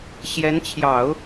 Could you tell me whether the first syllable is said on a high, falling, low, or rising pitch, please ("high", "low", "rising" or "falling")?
rising